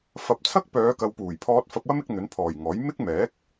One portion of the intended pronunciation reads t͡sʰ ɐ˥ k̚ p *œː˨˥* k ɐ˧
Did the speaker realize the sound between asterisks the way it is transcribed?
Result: no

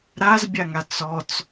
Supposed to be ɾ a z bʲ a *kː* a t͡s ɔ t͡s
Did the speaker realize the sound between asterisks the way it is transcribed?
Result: no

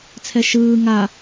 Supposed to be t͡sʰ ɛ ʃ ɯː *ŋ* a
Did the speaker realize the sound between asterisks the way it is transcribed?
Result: yes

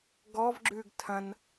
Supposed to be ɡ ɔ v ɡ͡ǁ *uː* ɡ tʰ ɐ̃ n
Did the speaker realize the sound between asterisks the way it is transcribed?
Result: no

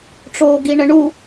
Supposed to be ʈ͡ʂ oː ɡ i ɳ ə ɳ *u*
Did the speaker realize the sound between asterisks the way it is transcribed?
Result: yes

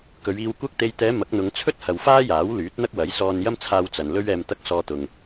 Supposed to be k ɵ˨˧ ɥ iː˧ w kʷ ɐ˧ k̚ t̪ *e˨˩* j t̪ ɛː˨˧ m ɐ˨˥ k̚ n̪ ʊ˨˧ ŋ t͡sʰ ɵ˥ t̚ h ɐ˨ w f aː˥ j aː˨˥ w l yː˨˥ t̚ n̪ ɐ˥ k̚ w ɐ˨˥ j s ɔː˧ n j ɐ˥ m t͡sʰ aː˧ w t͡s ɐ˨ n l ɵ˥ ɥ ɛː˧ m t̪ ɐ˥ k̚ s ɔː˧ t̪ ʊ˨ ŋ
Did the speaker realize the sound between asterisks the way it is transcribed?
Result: no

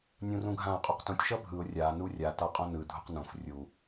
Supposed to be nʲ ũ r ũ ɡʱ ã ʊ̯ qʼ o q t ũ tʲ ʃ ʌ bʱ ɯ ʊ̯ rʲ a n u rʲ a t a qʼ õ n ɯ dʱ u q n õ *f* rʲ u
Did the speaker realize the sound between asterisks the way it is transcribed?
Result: yes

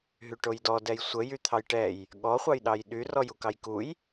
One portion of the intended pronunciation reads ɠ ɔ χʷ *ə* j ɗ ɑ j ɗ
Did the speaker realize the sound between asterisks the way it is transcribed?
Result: no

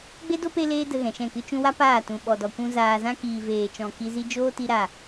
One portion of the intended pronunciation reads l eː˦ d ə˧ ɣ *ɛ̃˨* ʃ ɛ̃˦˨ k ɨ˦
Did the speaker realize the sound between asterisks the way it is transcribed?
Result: yes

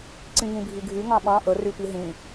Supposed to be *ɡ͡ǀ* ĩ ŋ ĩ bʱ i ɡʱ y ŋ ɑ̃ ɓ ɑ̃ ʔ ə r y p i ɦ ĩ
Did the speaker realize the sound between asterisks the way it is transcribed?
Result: no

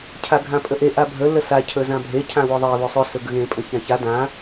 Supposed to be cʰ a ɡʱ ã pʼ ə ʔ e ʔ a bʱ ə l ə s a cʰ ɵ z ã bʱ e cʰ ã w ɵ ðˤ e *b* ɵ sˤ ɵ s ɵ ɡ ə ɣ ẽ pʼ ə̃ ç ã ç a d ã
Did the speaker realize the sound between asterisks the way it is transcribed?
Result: no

